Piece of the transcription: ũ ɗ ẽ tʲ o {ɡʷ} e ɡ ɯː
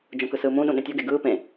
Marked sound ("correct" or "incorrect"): incorrect